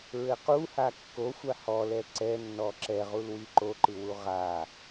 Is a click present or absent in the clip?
present